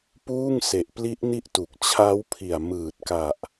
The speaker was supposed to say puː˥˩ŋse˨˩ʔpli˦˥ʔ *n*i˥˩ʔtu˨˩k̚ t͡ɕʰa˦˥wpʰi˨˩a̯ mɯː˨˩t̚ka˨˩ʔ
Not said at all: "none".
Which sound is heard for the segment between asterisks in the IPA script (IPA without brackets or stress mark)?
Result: n